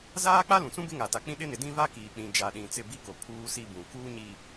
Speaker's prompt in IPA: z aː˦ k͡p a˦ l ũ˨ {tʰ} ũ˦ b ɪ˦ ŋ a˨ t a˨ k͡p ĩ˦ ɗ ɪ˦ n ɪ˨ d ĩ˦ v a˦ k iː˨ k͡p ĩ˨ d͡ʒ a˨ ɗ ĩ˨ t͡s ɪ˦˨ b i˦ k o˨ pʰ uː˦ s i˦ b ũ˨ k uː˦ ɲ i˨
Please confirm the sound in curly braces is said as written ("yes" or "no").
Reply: no